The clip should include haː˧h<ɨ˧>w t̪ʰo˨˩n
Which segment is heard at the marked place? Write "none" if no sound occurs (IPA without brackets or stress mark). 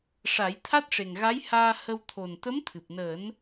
ə˧